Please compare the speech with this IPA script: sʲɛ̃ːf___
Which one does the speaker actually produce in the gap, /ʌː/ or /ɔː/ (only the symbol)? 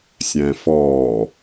ɔː